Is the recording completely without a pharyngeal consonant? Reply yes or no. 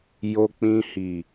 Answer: yes